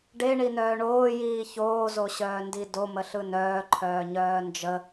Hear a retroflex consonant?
yes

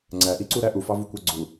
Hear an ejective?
no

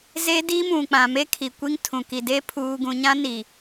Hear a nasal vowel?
yes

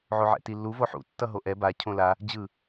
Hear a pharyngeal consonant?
yes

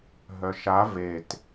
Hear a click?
no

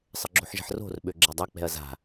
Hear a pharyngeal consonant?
yes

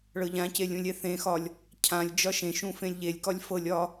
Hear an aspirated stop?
yes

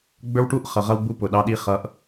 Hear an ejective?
no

